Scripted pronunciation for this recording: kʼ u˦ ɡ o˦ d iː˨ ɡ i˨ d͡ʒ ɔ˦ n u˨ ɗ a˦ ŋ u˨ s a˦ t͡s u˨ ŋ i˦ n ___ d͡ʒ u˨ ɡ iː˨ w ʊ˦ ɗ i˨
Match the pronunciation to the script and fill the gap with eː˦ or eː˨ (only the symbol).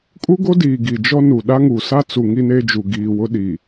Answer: eː˦